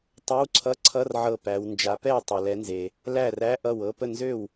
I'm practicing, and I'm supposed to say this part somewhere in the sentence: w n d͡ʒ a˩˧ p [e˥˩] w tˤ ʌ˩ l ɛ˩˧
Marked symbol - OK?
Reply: no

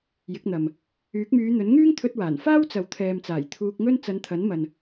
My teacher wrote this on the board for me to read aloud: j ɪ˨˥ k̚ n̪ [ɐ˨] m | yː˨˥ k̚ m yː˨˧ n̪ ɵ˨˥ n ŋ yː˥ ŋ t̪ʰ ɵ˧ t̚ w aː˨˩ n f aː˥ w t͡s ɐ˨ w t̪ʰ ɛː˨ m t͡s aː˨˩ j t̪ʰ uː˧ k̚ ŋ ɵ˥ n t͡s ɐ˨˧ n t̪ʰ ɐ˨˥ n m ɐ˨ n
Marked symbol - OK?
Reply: yes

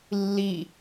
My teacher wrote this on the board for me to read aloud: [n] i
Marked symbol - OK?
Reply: no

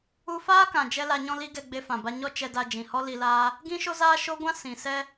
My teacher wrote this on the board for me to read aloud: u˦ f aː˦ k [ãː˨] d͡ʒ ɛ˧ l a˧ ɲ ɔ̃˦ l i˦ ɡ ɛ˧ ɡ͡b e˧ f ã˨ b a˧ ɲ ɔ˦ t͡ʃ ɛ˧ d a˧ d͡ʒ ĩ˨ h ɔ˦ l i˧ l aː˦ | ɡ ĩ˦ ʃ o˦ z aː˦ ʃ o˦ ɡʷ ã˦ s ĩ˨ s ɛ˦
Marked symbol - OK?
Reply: no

